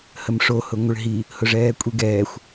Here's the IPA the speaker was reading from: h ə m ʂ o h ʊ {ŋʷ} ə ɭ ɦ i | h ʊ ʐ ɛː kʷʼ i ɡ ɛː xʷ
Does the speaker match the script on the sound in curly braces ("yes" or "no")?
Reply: yes